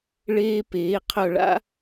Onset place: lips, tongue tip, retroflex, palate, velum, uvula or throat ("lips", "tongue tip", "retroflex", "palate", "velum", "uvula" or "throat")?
retroflex